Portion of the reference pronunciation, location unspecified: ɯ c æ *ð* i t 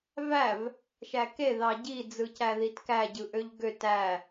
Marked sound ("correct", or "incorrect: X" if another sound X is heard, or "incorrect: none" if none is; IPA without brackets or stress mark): correct